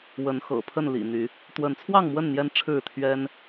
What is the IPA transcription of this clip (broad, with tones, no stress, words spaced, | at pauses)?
wə˨˦n xɤ̰˨˩pʰə˥˨nlḭ˨˩n̪y˨˦ | t̪wə˨˦nt͡sʰwɑ˥˨ŋmwə˥˨n n̪jɛ˦nʈ͡ʂʰɻ̩˥˨t̪ʰɥɛ˦n